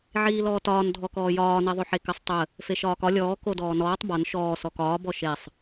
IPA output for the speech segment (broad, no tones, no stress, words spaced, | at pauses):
ʕiːlɔːtɒːn dʱɔkɔːjɒː niðˤoħekəsˤ tˤə | feʃɒːkɒ lʲɔː kodɔːnɔːtˤ bɒn ʃɔː sɔkɒː bɔʃesˤ